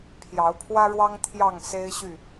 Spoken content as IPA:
pʰ j ɑ˨˦ ʊ̯ pʰ w ä˦ ɻ w ɑ˦ ŋ t̪ʰ j ɑ˥˨ ŋ s e˦ ɪ̯ ɕ y˥˨

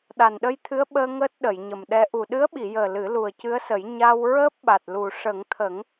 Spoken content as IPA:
ɗ a˨˩ n ɗ ə˧ j t̪ʰ ɨ˧˥ ə̯ ɓ əː˧ ŋ əː˦˥ t̚ ɗ ə˨˩˨ j ɲ ə˨˩ m ɗ ɛ˧˥ ʔ u˨˩ ɗ ɨ˧˥ ə̯ ɓ i˨˩˨ j əː˨˩ l ɨ˨˩˦ l u˨˩ ə̯ c ɨ˧˥ ə̯ s ə˨˩˦ j ɲ a˧ w ɹ əː˦˥ p̚ ɓ a˨˩ t̚ l u˨˩ ʂ ə˨˩˦ ŋ t̪ʰ ə˨˩˦ ŋ

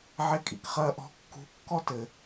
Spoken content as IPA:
ʕ e kʼ ḭ k χ ɐː ʔ ɔ̤ kː ṳ kː ɔ t ɘ

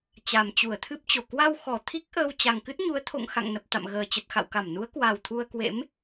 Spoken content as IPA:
t͡ɕ a˨˩ m t͡ɕ u˧˩ ə̯ t̪ʰ ɨ˦˥ p̚ t͡ɕ o˧˩ k w a˧ w x ɔ˧˩ t̪ʰ i˦˥ k̚ ʔ əː˧ w t͡ɕ a˨˩ ŋ k ɨ˦˥ t̚ ɲ u˨˦ ə̯ t̪ʰ o̰˧˨ ŋ x a̰˧˨ ŋ n ə˨˩ p̚ t̪ a̰˧˨ m ɣ əː˨˩ t͡ɕ ə˨˩ t̚ x a̰˧˨ w k a˧˩ m n u˨˦ ə̯ k w a˨˩ w t̪ʰ u˧ ə̯ k w ḛ˧˥ m

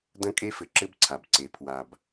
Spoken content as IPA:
d ɐ̃˥ kʼ e˥ f ɘ˩ ǁ ɘ˥ b ǀʰ a˩ b ǀ e˩ pʰ w a˩ b

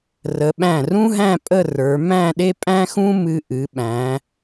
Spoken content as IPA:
r ə˩˧ ɓ æ̃˧˩ r ũ˥ ɦ æ̃˥˧ pʼ ə˥˧ r ə˞˩˧ m æ̃˥˧ ɗ e˥ pʼ æ̃˥ x ũ˥ m ɨ˧ ʔ ɨ˩˧ ɓ æ̃˩˧

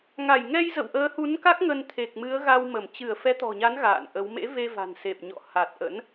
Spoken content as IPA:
ŋ a˧˩ j ŋ ɛ˧ j z ə̰˧˨ w ʔ əː˨˦ h u˨˦ n k a˦˥ k̚ ŋ ə˧ n t̪ʰ e˨˩ k̚ m ɨ˨˦ ə̯ ɣ a˧ w m ə˧˩ m t͡ɕ ɨ˧˩ ə̯ f ɛ˨˦ t̪ ɔ̤˨˩ ɲ a˨˦ n ɣ a̰ː˧˨ n ʔ ə˨˦ w m ḛ˧˥ v e˧ v a̤˨˩ n s e˨˩ p̚ ɲ ɔ̰˧˨ h a˨˩ t̚ ʔ ə̰˧˥ n

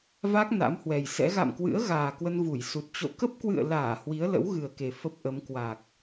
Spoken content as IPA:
v a˦˥ k̚ n a̰˧˥ m h w ɛ˨˩ j s ɛ̰˧˥ ɣ a̰˧˨ m k w ɨ̰˧˥ ə̯ ɣ aː˨˩ k w ə˧ n v u˧˩ j s u˨˩ t̚ t͡ɕ o̰˧˨ k ə˦˥ p̚ k w ɨ̰˧˨ ə̯ l aː˧˩ h w i˨˦ ə̯ l ə̰˧˥ w ɣ ɨ˨˩ ə̯ k e˨˩ f ə˦˥ p̚ ʔ ə˨˦ m k w a˨˩ k̚

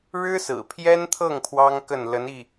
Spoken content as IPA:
ɻ ɻ̩˥ s ɹ̩˨˩ pʰ j ɛ˥ n t̪ʰ ɤ˥˩ ŋ pʰ w ɑ˥ ŋ k ə˥˩ n l ə˧˥ n i˥˩

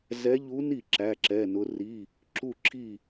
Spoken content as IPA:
z ɛ˧˥ ʎ u˧˥ n i˥˩ ǁ æ˧˥˧ ǁ ɛ˧˥˧ n ʊ˧˥ r i˧˥˧ | ǁ u˥˧ ǁʰ i˥˧

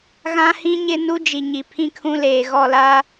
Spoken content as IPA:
ɣ ã˦ h ĩ˦ ɲ ɪ˦ n u˦ d͡ʒ i˨ ɲ i˨ pʰ ĩ˦ kʰ ũ˦ l eː˨ ɣ ɔ˦˨ l a˦

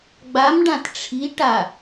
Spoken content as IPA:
ɡ͡b a m ɖ ã t ʈ͡ʂʰ i ʈ a

